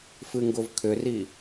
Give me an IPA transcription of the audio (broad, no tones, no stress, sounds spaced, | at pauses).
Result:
f ɨ ŋ ɡ ʊ v kʰ ʏ r i